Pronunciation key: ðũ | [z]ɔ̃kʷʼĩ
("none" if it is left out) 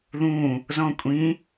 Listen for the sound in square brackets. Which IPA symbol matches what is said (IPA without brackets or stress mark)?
z